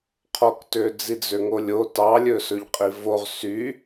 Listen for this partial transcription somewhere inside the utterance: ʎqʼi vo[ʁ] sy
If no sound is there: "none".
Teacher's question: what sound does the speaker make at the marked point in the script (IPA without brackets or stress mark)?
ʁ